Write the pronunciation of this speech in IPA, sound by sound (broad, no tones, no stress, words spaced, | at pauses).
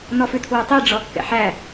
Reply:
nɔfʉtʰwɵ tˤi ɖ͡ʐɔkːɛ̰ħæ